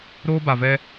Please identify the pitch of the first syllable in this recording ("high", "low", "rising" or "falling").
high